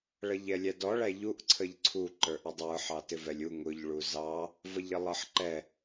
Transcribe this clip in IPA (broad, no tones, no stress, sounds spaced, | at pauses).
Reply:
ɭ ʌ ʎ ɛ lʲ æ d ɔ ɭ æ ʎ u ʔ ǀʰ ə ʎ ǀʰ u ǃ ə˞ ʔ ə dˤ ə˞ ħ ɑ t ɪ v ɛ lʲ u ŋ ʊ ʎ ɭ u z ɑ | v ʌ ʎ ə lˠ ʌ ħ ǃ ɛ